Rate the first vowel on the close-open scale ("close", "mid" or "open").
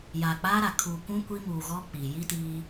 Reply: open